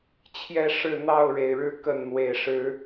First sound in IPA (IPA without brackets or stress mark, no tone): t͡ɕʰ